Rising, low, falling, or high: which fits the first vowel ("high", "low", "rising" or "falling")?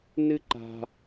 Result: high